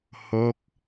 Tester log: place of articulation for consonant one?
glottal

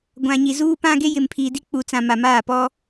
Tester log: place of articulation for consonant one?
velar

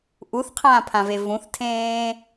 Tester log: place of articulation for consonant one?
glottal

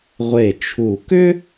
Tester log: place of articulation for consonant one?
uvular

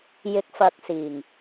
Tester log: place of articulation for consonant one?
palatal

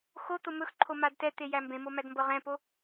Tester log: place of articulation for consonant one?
velar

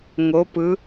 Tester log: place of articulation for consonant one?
velar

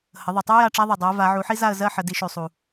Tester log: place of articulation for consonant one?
glottal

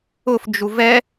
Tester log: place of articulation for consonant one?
labial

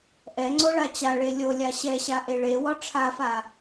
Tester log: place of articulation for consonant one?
glottal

